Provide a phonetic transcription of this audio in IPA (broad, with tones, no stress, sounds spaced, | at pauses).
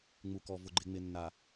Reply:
ŋ͡m u˨ k ɔ˨ v ʊ˨ ɡ͡ǃ ɪ˨ ŋ͡m ɪ˨ nː a˨